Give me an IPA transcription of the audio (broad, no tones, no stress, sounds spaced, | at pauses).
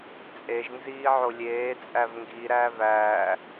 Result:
t͡sʼ e ʒ n z iː ʕ o lʲ eː t͡sʼ æ v ŋ ɡ i ɾ æː v æː